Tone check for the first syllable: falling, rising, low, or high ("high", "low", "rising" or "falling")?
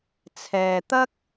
low